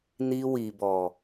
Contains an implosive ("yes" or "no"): no